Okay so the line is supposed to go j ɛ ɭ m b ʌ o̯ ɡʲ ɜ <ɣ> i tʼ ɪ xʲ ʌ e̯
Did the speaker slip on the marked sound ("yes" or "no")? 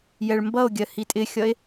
yes